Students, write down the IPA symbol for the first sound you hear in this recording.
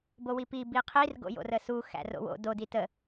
b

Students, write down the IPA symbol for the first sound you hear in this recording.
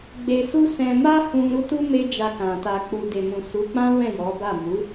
ɡ͡b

